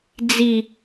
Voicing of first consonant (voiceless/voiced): voiced